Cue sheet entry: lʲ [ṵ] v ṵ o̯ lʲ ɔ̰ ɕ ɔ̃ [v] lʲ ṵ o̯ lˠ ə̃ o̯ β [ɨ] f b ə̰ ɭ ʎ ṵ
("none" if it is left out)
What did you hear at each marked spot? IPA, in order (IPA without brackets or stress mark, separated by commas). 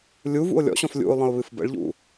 u, f, ɨ